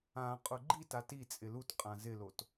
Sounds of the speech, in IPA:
ã qʼ ʊ ɡ͡ǃ i t a t i t͡sʼ ɪ l u t qʼ ã z ɪ l o t

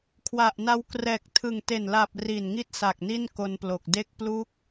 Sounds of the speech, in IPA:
kʰ w a˨˩ ʔ n a˧ w k r ɛː˨˩ k̚ tʰ ɯ˨˩ ŋ t e˨˩ n l a˨˩ p̚ r iː˨˩ n ŋ i˦˥ t̚ s a˨˩ k̚ n i˥˩ n k o˧ n p l o˨˩ k̚ d e˦˥ k̚ p l u˦˥ k̚

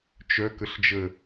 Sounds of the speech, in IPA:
t͡ʃ œ k ə ɬ d͡ʒ ə

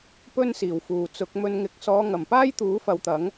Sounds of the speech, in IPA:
p ɵ˥ n s iː˨˩ w f uː˨ t͡s ʊ˨˥ k̚ m ɵ˧ n ŋ ɪ˨˥ k̚ s ɔː˨˧ ŋ ɐ˨˩ m p aː˥ j t̪ uː˨˥ f ɐ˨˧ w t̪ ɐ˨˥ ŋ

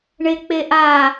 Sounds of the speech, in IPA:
ɳ e k͡p e ʔ a

